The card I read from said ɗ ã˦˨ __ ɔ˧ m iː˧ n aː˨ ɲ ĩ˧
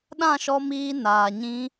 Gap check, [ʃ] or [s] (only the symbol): ʃ